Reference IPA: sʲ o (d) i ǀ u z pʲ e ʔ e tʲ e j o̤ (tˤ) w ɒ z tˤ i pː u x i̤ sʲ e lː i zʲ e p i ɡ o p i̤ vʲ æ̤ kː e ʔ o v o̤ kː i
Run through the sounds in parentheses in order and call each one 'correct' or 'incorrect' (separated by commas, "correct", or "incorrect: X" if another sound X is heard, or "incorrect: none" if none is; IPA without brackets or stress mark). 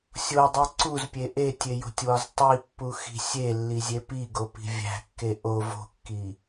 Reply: incorrect: dˤ, incorrect: tʲ